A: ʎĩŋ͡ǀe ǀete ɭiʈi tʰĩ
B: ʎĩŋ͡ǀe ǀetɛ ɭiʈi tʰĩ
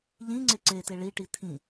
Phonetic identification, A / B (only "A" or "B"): A